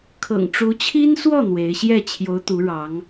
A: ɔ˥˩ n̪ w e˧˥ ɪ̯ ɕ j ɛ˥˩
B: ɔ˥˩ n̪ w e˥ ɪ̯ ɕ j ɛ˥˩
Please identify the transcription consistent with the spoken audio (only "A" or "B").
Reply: A